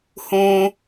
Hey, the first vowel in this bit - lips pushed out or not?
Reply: yes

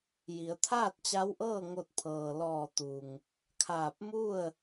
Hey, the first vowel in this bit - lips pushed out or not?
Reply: no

